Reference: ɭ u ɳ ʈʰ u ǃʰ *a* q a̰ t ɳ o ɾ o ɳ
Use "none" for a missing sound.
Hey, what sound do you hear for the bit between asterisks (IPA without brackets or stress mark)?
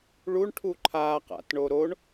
a